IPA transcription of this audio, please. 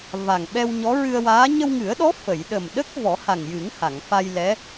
va˨˩ŋ ɓɛ˧wɲɔ˧˥ɹɨ˧ə̯waː˧˥ ɲə˧wŋɨ˨˩˦ə̯ɗɔ˧˥ fə˨˩˨j ɗə˨˩mɗə˦˥k̚ vɔ˨˩˦ha˨˩ŋjɨ˨˩˦ŋ ha˨˩˨ŋfa˧jlɛ˧˥

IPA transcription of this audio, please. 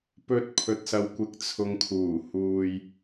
pɵ˥t̚pʰɵ˧t̚sɐ˧w kʷɪ˨˥k̚t͡sʰʊ˨ŋ kʰuː˨˩ huː˧j

